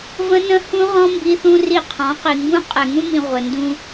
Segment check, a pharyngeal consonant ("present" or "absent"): absent